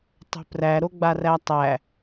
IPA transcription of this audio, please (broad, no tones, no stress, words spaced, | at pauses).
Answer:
tˤo̤præ ɾoɡ͡barætˤæ